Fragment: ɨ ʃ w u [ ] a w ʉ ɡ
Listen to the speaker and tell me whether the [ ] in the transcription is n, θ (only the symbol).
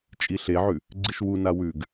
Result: n